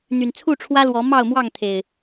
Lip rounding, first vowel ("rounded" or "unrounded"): rounded